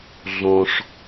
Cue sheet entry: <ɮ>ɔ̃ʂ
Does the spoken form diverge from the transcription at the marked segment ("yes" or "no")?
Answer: no